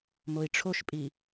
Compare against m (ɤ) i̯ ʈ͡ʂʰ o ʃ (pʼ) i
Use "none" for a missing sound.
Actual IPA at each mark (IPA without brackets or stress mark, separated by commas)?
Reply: o, pʼ